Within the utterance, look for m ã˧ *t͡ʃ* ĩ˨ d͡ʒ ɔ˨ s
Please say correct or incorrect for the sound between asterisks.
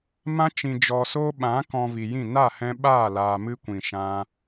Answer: correct